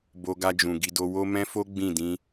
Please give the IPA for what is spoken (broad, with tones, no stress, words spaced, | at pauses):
bo˧ɡa˧d͡ʒũ˨ ɡi˧do˧ wo˦mɛ̃˦fo˦ ɡ͡bĩ˦˨dĩ˧